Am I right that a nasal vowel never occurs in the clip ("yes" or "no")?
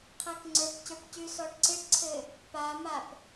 yes